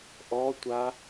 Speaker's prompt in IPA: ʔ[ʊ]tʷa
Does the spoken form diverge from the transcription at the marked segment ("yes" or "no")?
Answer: yes